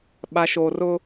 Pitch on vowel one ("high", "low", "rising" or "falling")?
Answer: low